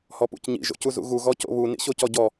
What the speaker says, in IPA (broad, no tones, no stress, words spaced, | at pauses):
hɔpṵcɲḭ ʒo̰cuzṵɣu ɣɔco̰βu nḭɕocɔɟɔ